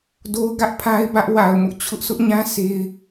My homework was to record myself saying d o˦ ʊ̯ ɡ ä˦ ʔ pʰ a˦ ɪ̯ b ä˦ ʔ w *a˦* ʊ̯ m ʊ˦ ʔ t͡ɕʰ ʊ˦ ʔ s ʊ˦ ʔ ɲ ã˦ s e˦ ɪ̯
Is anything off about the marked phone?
yes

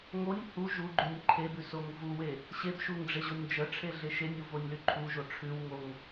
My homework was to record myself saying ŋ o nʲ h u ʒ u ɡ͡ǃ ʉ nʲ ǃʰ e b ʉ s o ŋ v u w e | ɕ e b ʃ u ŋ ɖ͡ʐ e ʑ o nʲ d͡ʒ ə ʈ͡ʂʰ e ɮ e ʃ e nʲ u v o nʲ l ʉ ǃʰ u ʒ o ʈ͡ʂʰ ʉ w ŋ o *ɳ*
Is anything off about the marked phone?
yes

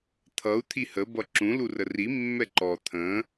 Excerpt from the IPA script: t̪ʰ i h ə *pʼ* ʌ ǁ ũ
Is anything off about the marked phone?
yes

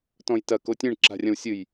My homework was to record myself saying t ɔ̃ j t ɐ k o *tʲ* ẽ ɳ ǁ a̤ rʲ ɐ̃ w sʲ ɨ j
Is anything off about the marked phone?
no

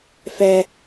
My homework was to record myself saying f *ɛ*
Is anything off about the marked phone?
no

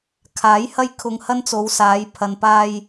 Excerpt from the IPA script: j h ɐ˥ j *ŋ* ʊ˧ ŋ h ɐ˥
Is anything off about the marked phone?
yes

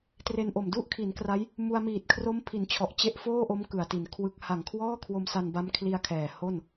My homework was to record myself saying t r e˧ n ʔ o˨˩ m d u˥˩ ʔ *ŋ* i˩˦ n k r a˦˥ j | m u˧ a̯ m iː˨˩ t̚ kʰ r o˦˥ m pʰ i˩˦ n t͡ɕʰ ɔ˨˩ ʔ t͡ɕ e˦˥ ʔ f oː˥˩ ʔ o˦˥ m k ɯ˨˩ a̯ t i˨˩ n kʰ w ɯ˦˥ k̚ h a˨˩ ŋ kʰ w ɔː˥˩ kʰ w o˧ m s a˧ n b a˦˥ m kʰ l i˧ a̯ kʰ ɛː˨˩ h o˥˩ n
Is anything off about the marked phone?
yes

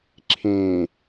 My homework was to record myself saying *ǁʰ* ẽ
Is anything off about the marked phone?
no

